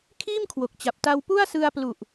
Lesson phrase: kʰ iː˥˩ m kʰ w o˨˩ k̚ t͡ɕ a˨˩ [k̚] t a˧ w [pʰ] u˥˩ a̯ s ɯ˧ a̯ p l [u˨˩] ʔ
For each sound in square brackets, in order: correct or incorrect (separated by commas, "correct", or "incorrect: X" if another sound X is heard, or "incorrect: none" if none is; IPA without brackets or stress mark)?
incorrect: p̚, incorrect: p, correct